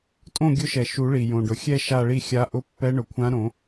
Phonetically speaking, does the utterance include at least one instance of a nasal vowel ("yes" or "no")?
yes